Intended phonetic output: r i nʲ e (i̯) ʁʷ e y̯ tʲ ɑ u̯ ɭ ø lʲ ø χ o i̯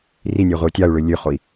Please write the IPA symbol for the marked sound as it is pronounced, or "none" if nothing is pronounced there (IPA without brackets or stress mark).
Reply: none